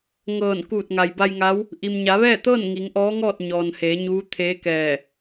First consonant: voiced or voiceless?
voiced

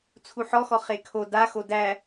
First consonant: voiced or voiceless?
voiceless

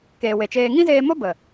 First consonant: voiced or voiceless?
voiceless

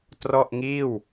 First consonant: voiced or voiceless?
voiceless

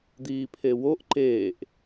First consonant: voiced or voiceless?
voiced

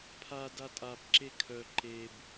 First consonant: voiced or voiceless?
voiceless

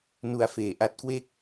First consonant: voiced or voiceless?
voiced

